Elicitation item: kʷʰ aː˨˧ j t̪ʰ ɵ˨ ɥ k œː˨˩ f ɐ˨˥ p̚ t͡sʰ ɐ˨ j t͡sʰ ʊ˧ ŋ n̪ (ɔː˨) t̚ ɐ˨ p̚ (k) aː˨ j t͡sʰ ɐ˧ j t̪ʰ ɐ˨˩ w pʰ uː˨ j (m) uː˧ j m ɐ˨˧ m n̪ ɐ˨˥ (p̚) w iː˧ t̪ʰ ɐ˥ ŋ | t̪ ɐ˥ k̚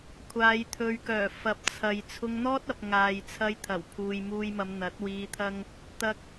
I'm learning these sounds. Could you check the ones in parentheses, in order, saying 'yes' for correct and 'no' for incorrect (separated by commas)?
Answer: no, no, yes, no